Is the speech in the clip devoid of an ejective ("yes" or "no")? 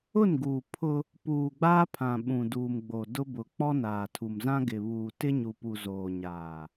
yes